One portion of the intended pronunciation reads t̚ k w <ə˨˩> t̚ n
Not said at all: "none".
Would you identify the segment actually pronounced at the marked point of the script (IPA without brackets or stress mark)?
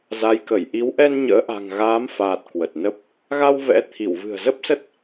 ə˨˩